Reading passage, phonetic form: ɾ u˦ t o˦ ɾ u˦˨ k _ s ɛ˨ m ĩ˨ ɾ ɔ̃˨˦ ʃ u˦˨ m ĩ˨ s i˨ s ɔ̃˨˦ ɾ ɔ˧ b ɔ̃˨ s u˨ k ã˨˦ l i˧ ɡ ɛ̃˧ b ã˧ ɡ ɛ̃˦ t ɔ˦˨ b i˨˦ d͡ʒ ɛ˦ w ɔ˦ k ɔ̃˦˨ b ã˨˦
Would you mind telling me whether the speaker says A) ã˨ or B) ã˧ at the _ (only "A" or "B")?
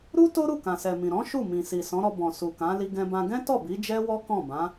A